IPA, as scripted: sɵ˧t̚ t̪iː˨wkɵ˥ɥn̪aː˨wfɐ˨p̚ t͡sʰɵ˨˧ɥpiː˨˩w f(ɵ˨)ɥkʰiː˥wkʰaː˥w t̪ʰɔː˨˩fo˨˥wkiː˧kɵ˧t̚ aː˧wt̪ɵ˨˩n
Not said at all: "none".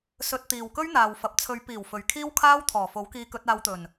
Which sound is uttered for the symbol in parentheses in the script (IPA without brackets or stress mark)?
ɵ˨